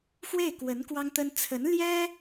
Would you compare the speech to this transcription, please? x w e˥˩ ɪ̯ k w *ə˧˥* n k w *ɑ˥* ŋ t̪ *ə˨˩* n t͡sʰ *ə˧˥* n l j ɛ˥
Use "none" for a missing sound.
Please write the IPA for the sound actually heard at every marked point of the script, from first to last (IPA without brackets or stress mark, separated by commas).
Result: ə˧˥, ɑ˥, ə˥, ə˧˥